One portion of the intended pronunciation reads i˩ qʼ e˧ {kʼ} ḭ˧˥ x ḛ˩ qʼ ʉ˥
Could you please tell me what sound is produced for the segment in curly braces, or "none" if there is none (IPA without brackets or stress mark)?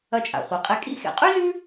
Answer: kʼ